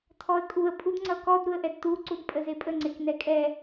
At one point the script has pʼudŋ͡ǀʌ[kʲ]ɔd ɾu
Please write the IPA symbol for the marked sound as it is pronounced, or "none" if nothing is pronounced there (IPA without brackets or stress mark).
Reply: k